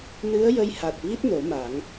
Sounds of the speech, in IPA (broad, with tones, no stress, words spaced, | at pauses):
nɨ˧˥ə̯jə˧jha˨˩t̚vi˦˥t̚ no˨˩˦ma˨˩˦ŋ